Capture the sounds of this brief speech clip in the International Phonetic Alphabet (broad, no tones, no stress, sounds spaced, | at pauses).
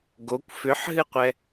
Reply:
ɡ o kʷ f ʏ ħ ɦ ɨ qʷ ɛ